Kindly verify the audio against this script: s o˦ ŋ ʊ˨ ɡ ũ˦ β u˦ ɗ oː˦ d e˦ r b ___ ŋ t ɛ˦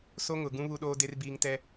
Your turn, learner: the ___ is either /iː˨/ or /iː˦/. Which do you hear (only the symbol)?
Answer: iː˦